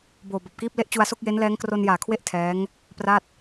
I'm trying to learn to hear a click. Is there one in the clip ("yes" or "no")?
no